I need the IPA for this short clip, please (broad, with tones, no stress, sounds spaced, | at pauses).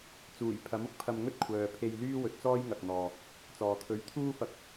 t͡s uː˨˩ j pʰ ɐ˨˥ m ʊ˧ k̚ pʰ ɐ˧ m ŋ ɵ˥ t̚ kʷʰ œː˨ pʰ e˧ j l yː˥ w ɵ˨ t̚ t͡s ɔː˥ j ŋ ɐ˨ k̚ n̪ ɔː˨ | t͡s ɔː˨ t̪ʰ ɵ˨˥ ɥ t̪ʰ uː˥ f ɐ˧ k̚